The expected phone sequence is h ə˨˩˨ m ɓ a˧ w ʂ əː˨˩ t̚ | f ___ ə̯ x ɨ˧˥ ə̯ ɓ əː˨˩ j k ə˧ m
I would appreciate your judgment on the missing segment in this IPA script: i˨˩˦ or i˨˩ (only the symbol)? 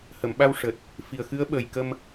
i˨˩